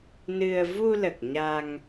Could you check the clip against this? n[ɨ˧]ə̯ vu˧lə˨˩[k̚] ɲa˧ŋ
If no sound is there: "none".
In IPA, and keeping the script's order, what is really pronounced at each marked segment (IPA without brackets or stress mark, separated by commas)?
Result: ɨ˧, k̚